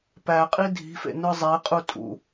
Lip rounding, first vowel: unrounded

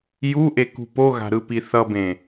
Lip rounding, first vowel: rounded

